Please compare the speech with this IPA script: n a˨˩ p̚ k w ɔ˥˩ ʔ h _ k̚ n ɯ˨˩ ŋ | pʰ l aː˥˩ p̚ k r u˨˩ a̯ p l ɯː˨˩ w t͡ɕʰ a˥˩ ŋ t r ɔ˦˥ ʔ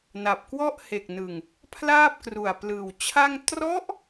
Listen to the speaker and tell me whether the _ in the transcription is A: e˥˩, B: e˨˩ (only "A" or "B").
B